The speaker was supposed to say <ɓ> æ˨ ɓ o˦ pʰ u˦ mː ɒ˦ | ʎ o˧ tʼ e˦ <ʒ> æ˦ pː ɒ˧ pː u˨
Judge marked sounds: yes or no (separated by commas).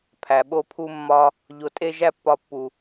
no, yes